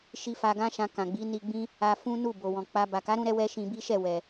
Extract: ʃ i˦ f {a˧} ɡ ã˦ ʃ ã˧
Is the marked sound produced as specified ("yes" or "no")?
yes